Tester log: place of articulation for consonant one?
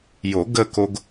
palatal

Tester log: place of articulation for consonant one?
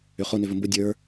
uvular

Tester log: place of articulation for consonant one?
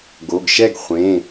velar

